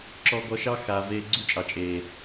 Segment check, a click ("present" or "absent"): present